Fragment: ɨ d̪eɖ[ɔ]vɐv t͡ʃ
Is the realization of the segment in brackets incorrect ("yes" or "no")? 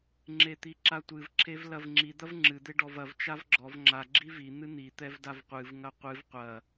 no